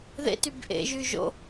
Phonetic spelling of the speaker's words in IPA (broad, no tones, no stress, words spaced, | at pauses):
ðḛtyb ʔḛʒy ʒo̰